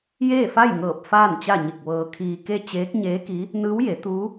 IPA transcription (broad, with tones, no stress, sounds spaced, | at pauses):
j eː˥˨ f a˥˨ j ŋ ɤː˧˩ p̚ f aː˥˨ n t͡ɕ a˥˨ ɲ i˧˩ k̚ ʋ ɤː˧ kʰ iː˧ k e˥˨ t͡ɕ eː˧˥ k̚ ɲ eː˧˥ k i˧˥ | n ɯː˧˥ w j e˩˧ t̪ uː˧˥